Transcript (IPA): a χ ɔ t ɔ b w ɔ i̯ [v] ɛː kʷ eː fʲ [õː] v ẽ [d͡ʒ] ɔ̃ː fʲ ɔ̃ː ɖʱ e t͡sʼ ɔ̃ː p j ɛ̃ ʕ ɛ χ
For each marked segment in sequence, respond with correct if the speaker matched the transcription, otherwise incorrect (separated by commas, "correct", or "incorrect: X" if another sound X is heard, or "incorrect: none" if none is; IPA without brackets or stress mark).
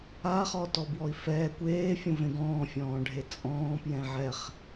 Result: incorrect: f, incorrect: õ, incorrect: ɡ